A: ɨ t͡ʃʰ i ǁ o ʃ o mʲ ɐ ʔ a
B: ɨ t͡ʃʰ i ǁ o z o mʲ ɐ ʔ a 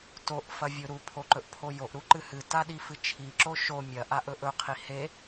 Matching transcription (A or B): A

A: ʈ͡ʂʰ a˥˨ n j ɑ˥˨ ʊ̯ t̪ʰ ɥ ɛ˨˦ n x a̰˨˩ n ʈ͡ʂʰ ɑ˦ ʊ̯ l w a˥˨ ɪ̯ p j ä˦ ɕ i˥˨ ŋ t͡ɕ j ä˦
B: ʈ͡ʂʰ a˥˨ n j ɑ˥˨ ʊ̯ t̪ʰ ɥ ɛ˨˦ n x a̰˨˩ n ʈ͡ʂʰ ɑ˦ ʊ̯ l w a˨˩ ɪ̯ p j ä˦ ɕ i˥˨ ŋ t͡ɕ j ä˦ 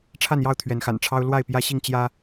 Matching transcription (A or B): A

